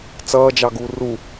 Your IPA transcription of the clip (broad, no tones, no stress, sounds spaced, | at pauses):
t͡s ʌː d͡ʒ ɑ ɡ uː r u